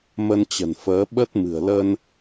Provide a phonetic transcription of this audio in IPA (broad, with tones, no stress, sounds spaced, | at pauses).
m ə˧ n t͡ɕ ə̤˨˩ n f əː˨˦ ɓ ə˦˥ t̚ m ɨ̤˨˩ ə̯ l ə˧ n